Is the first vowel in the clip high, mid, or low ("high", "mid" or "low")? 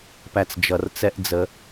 low